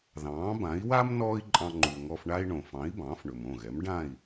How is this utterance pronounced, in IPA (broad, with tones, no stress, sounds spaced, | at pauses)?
ð ɑ̃ː˩˥ b ã˩˥ i̯ w a˥ m n ɔː˥ i̯ ǃʼ ɑ̃˧ ŋ͡ǃ u˩ ŋ ɔ˧ f ɳ a˥ i̯ ɳ õ˩ f ɑ̃˩˥ i̯ b ɑ̃ː˩˥ f ɳ ɵ˩ m õ˥˩ ɣ ɛ˩˥ m ɖ ã˥˩ i̯